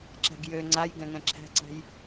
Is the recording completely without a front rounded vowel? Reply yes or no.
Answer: no